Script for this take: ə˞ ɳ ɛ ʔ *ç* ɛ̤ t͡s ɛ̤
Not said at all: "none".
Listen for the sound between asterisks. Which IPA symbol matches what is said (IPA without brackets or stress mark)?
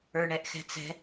x